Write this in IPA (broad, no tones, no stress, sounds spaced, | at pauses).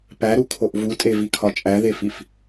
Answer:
p æ ɾ u kʰ o ʔ v u tʼ e v i kʰ ɒ t͡ʃʼ æ ð e f i f